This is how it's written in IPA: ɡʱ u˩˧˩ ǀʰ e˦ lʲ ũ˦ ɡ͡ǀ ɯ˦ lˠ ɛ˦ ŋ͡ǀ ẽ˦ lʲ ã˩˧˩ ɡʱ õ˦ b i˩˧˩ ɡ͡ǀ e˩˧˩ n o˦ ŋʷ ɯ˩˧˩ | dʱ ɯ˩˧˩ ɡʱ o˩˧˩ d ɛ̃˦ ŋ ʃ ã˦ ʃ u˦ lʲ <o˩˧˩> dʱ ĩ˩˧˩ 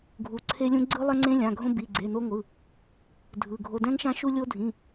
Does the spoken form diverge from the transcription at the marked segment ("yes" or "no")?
yes